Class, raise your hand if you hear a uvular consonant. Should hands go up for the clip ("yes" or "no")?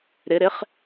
yes